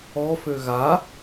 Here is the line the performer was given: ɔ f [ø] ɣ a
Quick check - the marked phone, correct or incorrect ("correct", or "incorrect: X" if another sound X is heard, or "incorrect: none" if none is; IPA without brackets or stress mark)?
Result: correct